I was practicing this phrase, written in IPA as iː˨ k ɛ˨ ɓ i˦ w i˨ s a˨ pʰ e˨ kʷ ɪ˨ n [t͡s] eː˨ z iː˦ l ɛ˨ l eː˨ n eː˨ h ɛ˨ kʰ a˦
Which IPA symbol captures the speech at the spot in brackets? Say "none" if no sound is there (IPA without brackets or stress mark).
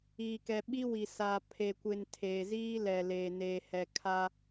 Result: tʰ